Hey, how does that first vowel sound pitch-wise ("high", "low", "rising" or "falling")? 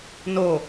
low